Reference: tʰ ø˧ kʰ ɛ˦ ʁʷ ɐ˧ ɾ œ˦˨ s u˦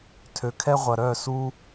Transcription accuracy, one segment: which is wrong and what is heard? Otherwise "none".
none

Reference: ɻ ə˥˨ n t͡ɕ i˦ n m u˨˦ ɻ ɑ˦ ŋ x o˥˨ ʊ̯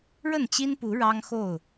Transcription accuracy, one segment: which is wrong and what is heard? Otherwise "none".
m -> p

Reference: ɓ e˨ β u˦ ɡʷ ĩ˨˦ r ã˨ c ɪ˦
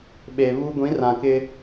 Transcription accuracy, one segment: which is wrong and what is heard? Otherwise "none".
c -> k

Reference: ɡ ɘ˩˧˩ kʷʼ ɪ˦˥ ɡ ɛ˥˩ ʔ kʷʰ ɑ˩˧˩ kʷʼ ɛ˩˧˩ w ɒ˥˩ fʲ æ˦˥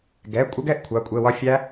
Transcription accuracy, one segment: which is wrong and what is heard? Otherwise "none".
ɘ˩˧˩ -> ɛ˩˧˩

